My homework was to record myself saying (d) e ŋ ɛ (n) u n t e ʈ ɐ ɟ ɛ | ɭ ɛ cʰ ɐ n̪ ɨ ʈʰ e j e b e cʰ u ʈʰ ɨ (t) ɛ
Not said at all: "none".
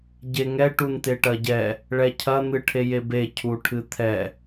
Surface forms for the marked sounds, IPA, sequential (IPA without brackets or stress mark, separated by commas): ɟ, ʈ, t̪ʰ